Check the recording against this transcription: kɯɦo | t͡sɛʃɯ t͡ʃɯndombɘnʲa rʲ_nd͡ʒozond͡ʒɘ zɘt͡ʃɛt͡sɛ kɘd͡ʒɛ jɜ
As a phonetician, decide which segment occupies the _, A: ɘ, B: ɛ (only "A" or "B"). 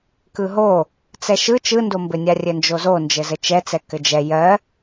A